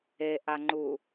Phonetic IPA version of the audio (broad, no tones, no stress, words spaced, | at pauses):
eʔaŋ͡ǃu